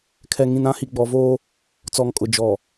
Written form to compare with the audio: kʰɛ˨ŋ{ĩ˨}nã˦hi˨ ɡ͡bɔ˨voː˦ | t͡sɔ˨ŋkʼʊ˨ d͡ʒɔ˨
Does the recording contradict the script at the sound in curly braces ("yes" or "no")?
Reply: no